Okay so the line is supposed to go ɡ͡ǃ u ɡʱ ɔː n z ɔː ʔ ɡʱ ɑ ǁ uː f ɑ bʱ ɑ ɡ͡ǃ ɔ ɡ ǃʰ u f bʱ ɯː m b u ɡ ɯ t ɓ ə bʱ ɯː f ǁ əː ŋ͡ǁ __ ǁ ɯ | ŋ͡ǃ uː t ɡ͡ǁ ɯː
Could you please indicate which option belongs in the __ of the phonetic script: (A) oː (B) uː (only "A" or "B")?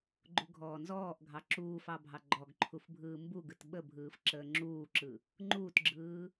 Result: B